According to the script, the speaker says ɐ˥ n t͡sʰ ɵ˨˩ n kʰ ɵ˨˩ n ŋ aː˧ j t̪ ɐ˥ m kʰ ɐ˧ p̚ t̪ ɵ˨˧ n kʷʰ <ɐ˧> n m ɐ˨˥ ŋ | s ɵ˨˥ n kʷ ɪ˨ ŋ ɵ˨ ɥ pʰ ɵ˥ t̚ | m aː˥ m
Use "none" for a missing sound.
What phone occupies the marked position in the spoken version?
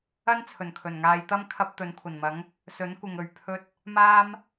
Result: ɐ˨˩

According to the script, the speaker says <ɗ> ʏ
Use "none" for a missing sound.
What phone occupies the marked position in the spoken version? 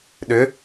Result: ɗ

